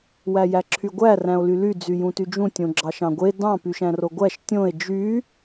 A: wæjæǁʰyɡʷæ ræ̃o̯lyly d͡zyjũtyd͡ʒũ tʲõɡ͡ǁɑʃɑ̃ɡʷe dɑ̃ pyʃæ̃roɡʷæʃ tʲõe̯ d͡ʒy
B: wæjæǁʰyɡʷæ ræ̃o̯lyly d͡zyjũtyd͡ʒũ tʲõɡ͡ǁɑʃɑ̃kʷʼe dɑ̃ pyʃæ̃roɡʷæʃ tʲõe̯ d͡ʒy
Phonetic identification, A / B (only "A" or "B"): A